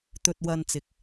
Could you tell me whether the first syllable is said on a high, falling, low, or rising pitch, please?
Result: low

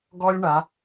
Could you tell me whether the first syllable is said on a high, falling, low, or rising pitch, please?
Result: high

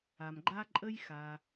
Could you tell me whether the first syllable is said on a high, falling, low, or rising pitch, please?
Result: low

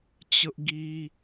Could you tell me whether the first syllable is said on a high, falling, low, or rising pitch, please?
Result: high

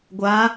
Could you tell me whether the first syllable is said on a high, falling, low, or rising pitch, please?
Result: rising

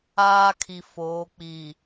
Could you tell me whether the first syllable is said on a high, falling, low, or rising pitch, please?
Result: high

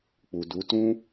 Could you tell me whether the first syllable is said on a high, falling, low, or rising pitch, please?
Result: low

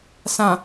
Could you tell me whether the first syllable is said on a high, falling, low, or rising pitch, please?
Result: low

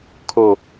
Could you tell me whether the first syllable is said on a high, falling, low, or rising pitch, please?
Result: low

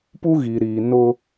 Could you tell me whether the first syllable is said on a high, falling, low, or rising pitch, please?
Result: high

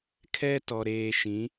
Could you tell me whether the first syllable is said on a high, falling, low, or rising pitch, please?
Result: high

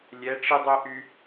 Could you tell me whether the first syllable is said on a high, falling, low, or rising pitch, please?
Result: rising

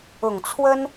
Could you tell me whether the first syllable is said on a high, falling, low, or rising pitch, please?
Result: low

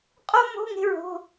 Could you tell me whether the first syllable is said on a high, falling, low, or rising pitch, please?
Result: high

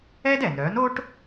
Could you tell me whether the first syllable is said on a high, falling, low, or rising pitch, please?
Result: high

